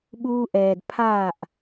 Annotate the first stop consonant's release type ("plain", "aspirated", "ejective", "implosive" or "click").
implosive